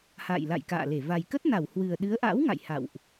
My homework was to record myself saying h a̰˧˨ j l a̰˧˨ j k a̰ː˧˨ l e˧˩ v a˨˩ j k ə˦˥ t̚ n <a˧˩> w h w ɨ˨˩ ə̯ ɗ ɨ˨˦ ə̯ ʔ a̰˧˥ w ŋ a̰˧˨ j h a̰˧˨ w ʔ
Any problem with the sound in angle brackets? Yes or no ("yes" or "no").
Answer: no